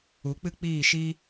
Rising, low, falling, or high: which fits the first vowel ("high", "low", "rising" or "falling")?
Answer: rising